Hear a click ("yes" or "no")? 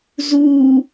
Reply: no